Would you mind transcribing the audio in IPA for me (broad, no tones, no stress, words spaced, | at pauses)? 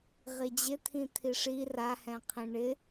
ʁid͡ʑɪt̪ʰĩ t̪ʰiʂi rahɛ̃qʰĩ ɳɪ